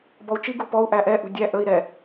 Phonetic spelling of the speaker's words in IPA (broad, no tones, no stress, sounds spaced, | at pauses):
b ɔ u̯ t͡ʃ i ɡ u p ɔ u̯ ʔ æ ʔ ɛ ʔ ṳ dʲ æ ʔ ə i̯ ɾ ɛ